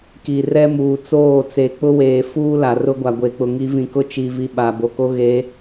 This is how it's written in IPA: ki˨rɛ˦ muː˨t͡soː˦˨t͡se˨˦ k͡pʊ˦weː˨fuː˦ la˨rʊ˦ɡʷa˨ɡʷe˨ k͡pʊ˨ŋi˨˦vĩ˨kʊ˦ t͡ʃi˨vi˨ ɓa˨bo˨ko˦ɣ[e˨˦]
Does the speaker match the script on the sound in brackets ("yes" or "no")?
yes